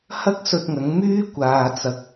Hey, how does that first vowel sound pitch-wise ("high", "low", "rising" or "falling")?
high